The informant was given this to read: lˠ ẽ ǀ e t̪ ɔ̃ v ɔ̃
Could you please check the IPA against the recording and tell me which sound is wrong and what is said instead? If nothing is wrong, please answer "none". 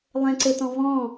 none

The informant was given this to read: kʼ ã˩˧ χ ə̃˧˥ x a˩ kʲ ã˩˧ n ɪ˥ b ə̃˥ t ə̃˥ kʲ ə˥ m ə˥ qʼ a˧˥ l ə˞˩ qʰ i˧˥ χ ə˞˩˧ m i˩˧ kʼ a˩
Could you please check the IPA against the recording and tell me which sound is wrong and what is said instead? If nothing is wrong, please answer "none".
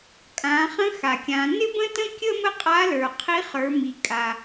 none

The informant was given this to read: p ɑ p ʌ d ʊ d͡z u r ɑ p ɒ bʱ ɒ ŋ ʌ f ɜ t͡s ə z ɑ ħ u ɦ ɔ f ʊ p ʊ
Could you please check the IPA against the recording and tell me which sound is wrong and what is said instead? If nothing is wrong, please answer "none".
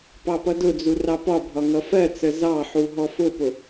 none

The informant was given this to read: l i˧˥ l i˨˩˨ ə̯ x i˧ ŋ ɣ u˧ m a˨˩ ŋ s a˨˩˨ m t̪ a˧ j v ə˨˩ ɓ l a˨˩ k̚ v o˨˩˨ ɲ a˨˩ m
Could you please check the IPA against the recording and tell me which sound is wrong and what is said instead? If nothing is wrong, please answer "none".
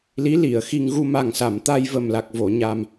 ɓ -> m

